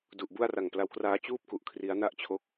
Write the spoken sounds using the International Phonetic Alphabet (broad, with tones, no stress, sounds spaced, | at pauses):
d u˨˩ ʔ b u˥˩ a̯ r a˨˩ ŋ p l a˧ w k r aː˦˥ t͡ɕ uː˥˩ p̚ k u˨˩ ʔ kʰ r i˦˥ a̯ n a˥˩ ʔ t͡ɕʰ o˦˥ k̚